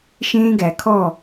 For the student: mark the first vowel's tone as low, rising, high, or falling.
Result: high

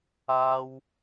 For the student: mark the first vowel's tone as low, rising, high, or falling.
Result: high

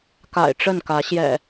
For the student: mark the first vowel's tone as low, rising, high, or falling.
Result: low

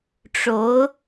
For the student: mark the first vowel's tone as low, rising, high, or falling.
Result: rising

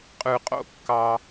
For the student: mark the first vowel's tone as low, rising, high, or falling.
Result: low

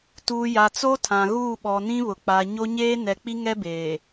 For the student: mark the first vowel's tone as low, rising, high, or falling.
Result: low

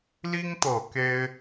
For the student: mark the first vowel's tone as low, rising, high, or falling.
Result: high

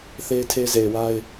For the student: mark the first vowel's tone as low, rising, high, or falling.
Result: high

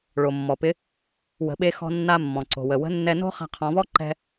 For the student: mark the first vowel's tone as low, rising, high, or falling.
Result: low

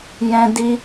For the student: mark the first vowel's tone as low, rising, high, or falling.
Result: high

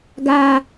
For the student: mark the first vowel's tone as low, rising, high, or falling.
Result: low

